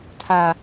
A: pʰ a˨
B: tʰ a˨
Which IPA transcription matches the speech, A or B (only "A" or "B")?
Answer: B